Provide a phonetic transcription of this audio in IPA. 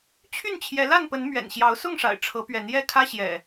t͡ɕʰy˥˨nt͡ɕʰjɛ˨˦la˥˨npə˨˦n mɥɛ̰˨˩nɕjɑ˨˦ʊ̯sʊ˥˨ŋʂa̰˨˩ɪ̯ ʈ͡ʂʰɤ˨˦pɥɛ˨˦n jɛ˥˨kʰä˦ɕjɛ̰˨˩

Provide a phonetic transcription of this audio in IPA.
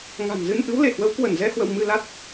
ŋa̤˨˩nzɨ˧n ʔɨ˨˦wle˧˩hwə˨˦w kwə˧˩nzɛ˧hwə̰˧˨w mɨ˧la˦˥t̚

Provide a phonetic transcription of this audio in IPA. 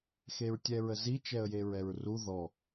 xeɹtʲɛɹəzi t͡ʃɛə̯jeɹɛɹru ðɔ

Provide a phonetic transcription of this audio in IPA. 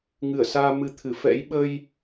ŋɨ˧˩ə̯saː˧ mɨ˧t̪ʰɨ˧˩fɛ̰˧˥j ɓə˧j

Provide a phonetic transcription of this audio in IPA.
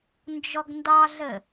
nd͡ʒɔɡndɑɮə

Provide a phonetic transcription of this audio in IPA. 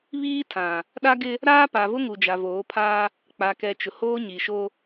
βiː˦tʰã˨ | ɗa˦ɡɪ˦ | ɾaː˦pa˨vʊ˦ ŋu˨d͡ʒa˨voː˨˦pʰaː˦ | k͡pa˨ kɛ˨ t͡ʃʊ˨hoː˦ɲi˨ʃo˦

